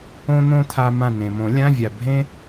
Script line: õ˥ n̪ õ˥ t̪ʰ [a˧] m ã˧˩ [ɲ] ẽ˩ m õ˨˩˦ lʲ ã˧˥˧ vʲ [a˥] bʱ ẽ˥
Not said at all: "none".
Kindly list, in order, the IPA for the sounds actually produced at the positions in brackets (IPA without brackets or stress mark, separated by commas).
a˧, n, a˩